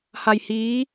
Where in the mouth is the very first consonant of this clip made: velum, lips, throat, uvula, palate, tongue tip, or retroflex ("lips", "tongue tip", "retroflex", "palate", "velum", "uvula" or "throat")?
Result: throat